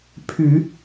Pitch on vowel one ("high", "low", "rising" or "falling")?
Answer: low